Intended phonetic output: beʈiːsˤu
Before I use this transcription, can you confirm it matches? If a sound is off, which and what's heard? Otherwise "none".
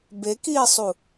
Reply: ʈ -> k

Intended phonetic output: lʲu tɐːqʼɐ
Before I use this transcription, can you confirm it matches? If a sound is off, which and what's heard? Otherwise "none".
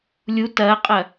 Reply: none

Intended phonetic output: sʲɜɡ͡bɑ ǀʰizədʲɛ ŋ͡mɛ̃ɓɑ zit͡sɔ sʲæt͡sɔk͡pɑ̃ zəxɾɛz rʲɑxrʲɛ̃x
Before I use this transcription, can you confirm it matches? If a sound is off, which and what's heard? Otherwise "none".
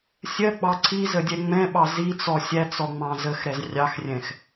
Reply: k͡p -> ŋ͡m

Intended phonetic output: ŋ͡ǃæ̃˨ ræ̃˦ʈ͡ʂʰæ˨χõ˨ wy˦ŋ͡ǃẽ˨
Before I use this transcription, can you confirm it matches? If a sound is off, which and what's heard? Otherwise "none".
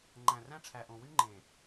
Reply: χ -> ʔ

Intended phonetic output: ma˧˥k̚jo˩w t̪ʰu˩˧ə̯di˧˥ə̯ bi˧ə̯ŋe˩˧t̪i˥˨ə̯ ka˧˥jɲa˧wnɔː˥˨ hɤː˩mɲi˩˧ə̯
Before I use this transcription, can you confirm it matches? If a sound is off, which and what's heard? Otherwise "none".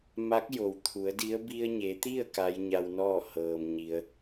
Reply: ŋ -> ɲ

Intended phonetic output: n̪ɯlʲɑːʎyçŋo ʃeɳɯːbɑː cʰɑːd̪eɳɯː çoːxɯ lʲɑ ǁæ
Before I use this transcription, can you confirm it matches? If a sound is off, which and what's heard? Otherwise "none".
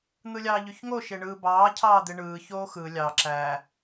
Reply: none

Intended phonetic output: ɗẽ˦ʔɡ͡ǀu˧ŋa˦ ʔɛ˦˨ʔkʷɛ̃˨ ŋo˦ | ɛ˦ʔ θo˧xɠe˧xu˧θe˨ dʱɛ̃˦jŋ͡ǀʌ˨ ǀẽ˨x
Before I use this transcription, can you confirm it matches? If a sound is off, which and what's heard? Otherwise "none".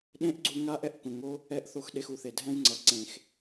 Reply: ɠ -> ɗ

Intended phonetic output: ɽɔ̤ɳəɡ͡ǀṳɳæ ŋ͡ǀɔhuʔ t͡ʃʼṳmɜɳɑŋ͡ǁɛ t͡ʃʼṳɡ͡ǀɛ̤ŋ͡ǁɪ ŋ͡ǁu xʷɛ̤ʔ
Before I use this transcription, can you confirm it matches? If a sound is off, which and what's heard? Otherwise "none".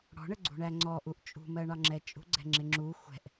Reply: h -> ʔ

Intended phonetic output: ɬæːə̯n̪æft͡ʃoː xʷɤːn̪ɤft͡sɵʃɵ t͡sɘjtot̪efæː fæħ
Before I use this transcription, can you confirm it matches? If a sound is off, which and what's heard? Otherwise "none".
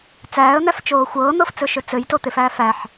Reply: ɬ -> t͡s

